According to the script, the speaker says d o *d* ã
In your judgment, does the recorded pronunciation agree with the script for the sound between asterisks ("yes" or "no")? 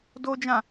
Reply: no